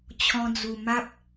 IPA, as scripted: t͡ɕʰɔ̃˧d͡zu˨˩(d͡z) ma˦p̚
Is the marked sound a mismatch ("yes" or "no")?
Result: yes